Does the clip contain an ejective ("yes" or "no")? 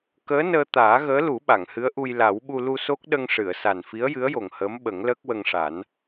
no